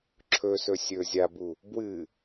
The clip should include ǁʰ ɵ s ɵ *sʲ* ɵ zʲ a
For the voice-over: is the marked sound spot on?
yes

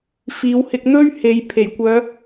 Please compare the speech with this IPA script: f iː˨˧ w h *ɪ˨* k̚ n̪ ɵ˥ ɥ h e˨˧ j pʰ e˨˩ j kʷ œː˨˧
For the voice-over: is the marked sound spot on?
no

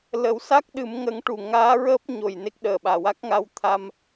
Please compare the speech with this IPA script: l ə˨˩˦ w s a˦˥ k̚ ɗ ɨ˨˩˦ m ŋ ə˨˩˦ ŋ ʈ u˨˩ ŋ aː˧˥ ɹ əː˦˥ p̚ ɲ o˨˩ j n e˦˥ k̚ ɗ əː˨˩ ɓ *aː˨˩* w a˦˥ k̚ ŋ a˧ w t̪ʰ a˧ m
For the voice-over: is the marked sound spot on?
yes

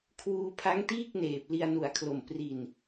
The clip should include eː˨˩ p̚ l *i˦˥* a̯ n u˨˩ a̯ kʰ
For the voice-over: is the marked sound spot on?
no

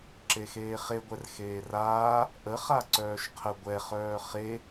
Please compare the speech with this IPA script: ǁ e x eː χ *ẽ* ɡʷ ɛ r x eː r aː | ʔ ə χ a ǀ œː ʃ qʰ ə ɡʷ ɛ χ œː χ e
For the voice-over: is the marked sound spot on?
no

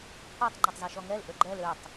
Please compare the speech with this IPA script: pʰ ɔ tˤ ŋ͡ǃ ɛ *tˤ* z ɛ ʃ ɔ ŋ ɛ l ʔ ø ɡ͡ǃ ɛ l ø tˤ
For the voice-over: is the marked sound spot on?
yes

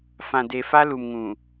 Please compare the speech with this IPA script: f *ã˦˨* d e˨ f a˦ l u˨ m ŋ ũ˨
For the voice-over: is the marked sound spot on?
no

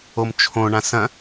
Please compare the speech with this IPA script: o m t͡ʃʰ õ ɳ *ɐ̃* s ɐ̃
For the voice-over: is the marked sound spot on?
no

